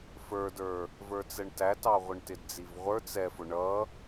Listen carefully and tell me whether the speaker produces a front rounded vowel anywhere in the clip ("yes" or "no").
no